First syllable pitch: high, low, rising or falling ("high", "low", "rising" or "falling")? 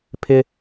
high